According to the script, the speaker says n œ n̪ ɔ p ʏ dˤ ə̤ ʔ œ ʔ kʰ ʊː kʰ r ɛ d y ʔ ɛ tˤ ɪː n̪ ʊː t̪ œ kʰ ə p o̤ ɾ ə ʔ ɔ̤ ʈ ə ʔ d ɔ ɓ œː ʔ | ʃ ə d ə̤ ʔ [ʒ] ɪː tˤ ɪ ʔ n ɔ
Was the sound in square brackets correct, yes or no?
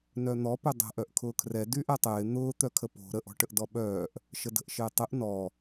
no